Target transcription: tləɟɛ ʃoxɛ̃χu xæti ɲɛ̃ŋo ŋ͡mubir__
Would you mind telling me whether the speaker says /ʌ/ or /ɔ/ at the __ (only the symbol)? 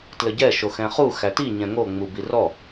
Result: ɔ